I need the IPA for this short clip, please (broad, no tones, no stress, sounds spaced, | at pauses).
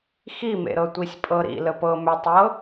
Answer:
x i m ḛ ɾ ɤ tʷ i sʲ pʼ ɤ ɾ ḭ l ə p ɤ m ʏ tˤ ɤ